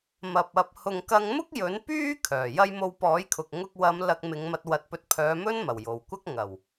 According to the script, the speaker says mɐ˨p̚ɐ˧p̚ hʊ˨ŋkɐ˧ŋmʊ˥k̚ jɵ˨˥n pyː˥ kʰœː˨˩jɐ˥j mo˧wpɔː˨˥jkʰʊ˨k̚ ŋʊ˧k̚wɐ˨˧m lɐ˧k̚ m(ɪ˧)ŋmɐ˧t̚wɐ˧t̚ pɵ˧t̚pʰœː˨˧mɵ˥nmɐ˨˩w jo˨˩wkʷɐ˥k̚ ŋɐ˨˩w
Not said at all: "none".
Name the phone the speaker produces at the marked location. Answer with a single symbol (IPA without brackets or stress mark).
ɪ˨˧